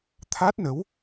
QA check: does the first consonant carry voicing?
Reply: no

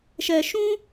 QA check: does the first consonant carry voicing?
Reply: no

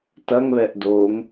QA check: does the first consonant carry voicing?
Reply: no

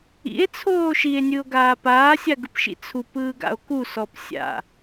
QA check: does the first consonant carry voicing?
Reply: no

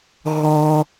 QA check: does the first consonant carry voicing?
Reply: yes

